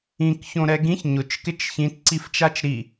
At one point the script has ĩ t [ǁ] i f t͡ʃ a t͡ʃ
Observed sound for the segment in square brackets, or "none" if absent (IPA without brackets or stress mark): ǀ